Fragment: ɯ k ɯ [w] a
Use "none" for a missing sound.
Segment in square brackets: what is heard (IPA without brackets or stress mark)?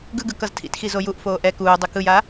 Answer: j